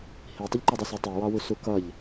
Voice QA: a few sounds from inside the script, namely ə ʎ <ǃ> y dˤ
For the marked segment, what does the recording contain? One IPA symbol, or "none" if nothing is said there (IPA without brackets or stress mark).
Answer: ǃ